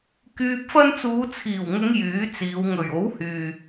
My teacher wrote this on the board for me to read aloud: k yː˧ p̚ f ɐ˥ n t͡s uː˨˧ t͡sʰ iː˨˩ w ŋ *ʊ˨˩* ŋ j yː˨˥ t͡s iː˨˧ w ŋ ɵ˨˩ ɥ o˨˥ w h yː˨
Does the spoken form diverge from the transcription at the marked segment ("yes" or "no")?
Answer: yes